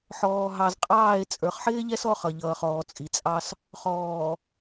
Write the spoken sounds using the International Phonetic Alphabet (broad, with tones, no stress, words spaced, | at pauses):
ħɔː˨ɦɑ˨zqʼɑː˦˨e̯ t͡sʼə˞˨χħɪː˦ʎɛ˦s ɔ˦χʌ˨ʎʌː˨χɔː˨ t͡sʼi˨t͡sʼɑ˦s | χɔː˨